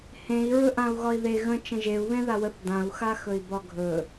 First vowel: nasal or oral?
nasal